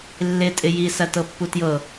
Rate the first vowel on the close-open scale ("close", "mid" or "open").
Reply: close